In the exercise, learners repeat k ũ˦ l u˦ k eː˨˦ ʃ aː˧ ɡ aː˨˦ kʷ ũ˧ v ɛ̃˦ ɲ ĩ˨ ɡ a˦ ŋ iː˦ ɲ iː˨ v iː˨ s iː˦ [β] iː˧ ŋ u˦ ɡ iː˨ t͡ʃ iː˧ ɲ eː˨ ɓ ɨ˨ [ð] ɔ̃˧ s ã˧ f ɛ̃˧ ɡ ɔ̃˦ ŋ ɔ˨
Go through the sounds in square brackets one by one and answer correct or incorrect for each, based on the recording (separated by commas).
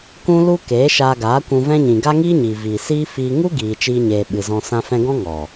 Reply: incorrect, incorrect